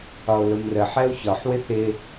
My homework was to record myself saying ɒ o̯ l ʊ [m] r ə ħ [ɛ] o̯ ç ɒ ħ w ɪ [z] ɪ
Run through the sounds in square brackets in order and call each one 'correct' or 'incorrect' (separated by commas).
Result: correct, correct, incorrect